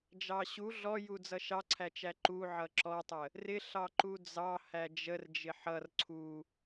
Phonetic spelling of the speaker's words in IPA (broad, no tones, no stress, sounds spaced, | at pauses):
d͡ʒ ɑ ɕ u ɮ ɔ j u d͡z ʌ ʃ ɑ ǀʰ æ t͡ʃ æ ǃ u ʕ ʌ ǁ ɔ tˤ ə | r ɪ ɬ ɑ ǃ u d͡z ɑ h æ d͡ʒ ə r d͡ʒ ɪ ħ ʌ r ǀʰ u